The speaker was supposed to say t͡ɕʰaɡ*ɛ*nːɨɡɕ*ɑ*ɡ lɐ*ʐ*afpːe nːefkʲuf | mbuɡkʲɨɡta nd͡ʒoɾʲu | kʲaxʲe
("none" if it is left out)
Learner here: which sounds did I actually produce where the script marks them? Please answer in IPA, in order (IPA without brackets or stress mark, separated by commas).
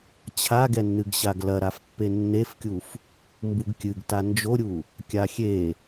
ɛ, a, ɾ